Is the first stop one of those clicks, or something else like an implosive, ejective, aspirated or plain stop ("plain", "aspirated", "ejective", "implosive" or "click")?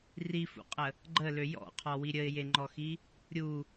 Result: ejective